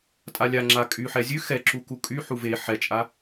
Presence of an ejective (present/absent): present